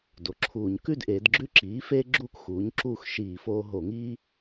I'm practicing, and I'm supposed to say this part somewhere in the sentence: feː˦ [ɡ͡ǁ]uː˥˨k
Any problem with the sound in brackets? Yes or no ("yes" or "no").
no